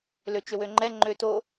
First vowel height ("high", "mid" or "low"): mid